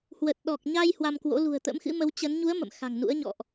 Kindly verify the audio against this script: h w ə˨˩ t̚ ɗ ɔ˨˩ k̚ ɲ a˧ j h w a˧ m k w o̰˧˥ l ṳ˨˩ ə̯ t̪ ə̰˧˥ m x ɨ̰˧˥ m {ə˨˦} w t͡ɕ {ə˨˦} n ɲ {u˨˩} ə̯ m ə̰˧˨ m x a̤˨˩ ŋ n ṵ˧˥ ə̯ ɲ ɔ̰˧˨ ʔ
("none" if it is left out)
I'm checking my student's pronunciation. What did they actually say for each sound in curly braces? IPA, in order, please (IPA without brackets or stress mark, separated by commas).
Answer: ə˨˦, ə˨˦, u˨˦